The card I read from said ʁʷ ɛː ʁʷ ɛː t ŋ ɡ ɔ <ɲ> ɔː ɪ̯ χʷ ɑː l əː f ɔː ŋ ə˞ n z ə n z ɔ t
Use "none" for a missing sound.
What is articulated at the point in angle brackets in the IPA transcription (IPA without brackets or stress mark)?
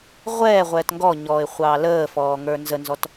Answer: ɲ